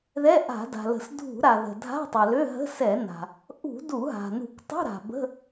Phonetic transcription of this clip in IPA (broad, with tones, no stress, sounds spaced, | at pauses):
ð ɛ˧˥˧ ʔ a̤˧˩˧ d a̤˩ l ə̤˧˩˧ s dʱ ṳ˧˩˧ ɾ a˩ ð ə̤˩ dʱ a̤˧˥˧ tˤ ɛ˩ l ø˧˥˧ ɦ ə̤˧˥˧ s ɛ˧˩˧ n a̤˩ | ʔ ṳ˧˩˧ d u˧˩˧ ɦ a̤˩ n ṳ˧˩˧ k tˤ ṳ˧˥˧ ɾ a̤˩ b ə̤˧˥˧